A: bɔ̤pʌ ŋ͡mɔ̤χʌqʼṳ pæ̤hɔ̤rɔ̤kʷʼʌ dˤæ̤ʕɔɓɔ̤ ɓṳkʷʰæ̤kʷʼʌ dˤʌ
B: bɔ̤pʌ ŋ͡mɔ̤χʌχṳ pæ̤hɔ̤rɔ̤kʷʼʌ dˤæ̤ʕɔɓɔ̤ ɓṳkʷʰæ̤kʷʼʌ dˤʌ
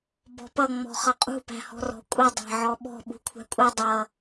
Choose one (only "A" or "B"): A